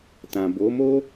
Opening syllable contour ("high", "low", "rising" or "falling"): low